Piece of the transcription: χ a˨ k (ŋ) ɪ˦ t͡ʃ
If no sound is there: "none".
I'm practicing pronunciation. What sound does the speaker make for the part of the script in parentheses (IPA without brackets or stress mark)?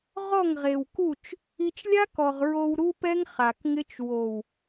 ŋ